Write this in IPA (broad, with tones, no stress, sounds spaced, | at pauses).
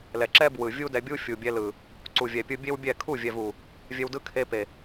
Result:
l ɛ˨ ǁ ɛ˦ b w ɯ˨ vʲ u˦ d ɛ˧ bʲ u˦ fʲ u˨ bʲ ɛ˧ l ɯ˨ | ǀ u˨ vʲ ɛ˨ pʲ ɯ˧ bʲ e˦ w bʲ ɛ˦˨ kʰ u˦˨ vʲ ɛ˨ v u˨ | vʲ ɛ˧ w d ɯ˦ kʰ e˧ p e˨